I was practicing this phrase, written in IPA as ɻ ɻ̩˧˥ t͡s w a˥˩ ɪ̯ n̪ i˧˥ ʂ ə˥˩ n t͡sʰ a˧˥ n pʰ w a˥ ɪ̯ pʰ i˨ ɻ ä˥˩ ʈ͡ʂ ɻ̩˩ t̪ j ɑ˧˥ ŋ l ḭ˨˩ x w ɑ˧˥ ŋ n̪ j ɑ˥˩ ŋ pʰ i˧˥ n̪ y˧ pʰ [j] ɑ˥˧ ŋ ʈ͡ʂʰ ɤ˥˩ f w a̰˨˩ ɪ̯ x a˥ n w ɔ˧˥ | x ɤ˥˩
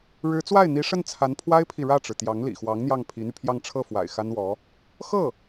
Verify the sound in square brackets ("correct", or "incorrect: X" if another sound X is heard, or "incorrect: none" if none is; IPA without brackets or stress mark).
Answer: correct